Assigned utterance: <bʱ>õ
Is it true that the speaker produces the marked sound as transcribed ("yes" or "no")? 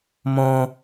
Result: no